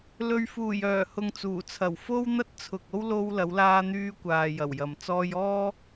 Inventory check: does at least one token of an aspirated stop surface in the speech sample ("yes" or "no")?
yes